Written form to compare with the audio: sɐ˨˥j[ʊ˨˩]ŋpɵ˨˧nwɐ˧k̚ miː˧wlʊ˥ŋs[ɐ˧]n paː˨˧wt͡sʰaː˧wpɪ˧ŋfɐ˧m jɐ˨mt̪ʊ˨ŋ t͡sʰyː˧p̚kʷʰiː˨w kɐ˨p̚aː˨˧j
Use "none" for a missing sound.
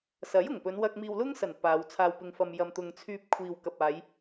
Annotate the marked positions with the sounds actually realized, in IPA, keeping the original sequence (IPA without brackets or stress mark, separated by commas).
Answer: ʊ˨˩, ɐ˨˩